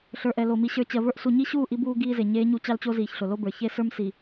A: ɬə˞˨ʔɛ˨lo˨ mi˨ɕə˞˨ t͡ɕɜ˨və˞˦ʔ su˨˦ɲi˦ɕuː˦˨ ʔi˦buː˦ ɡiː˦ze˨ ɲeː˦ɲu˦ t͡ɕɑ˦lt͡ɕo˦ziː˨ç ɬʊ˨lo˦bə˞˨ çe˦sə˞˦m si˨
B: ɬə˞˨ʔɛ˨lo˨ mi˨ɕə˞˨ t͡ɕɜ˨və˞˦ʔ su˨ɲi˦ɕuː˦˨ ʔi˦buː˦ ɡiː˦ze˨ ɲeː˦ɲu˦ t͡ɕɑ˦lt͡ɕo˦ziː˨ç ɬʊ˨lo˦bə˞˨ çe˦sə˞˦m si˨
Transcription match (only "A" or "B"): B